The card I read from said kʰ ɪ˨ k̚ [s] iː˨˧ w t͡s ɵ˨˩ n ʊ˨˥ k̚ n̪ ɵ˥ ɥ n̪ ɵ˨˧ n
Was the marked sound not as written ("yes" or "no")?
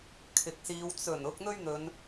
no